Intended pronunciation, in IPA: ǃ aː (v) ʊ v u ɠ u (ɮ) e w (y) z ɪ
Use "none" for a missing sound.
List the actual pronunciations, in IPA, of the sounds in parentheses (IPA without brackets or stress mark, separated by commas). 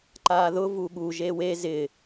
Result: ð, ʒ, e